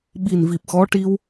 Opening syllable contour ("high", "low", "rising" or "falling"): low